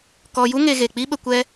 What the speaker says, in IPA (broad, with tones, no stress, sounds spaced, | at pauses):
k ɔ˧ j u˦ ŋ e˧ ɣ e˨ k͡p i˦ ɓ ə˧ kʷ ɛ˦